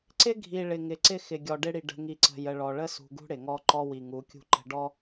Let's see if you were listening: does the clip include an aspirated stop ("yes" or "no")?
no